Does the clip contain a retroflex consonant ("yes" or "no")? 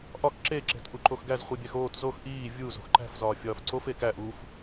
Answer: no